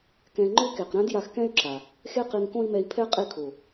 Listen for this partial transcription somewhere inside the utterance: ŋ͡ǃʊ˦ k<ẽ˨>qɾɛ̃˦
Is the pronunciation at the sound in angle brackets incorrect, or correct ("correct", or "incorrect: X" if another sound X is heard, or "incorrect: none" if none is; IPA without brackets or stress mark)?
incorrect: e˨